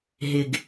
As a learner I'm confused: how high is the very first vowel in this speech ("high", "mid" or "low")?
high